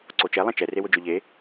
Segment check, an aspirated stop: absent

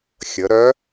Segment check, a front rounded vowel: present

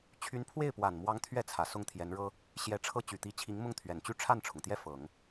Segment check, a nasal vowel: absent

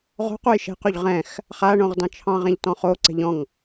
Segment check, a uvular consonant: present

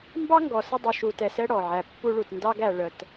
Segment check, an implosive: absent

